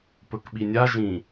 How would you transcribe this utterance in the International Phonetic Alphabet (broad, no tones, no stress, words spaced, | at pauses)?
pɵkɓinʲa ʒĩ